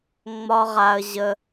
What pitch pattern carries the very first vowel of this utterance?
high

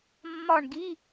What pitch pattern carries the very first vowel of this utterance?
falling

